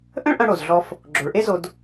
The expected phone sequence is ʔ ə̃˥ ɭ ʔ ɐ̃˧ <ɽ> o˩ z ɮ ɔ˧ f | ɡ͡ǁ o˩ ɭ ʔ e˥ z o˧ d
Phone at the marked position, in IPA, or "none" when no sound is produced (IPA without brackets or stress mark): ɽ